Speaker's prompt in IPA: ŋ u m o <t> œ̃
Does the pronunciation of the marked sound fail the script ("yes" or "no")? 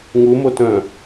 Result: no